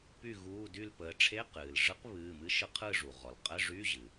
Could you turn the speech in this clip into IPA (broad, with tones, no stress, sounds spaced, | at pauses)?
p y˥˨ ɣ uː˧˥˧ d y˥˨ l p əː˩˧ ʈ͡ʂʰ e˧˥˧ q ɨː˩ l ʐ ɯ˧˥ q β ɨː˩˧˩ m ɨ˧˥ ʃ ɯ˧˥ qʰ ɯ˥˨ ʐ u˩ ʁ ɔ˩ l qʼ ə˧˥˧ ʐ y˧˥˧ ʑ ɨ˩